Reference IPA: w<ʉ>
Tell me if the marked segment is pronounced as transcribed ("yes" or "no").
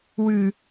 yes